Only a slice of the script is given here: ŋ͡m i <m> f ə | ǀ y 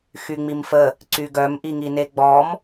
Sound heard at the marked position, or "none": m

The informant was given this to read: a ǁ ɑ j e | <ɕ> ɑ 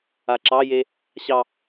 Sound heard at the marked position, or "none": ɕ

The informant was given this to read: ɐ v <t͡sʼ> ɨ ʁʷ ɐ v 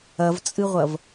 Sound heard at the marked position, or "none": t͡sʼ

